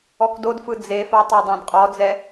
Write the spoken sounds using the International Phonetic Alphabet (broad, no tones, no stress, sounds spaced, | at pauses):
ɔ k d o d f ɯ d͡z e f a tˤ a dˤ ã d qʼ ɔ d͡z ɛ